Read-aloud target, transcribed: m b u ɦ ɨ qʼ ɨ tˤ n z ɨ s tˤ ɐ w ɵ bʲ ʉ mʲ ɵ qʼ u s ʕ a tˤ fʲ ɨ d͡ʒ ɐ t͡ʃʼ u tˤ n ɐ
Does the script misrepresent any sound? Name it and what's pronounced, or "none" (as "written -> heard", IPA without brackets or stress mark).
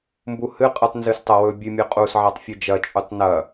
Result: ɦ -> h